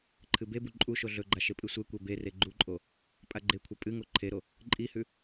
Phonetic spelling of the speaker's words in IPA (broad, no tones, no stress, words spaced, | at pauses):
ǃʰɨbebu ǃʼuʃo ɮɵɡ͡ǃa ʃepʼɨsʷekʷe bere ɡ͡ǃuǃʼo | pʼaɡ͡ǃekʷʰɐ pʼɨŋo ǃʰeɾo | ǃʼihʉ